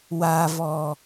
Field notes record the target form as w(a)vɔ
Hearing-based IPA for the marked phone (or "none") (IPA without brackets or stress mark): a